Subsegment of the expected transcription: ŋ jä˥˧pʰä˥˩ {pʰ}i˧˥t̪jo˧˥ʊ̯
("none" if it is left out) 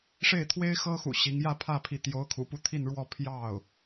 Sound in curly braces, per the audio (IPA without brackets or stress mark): pʰ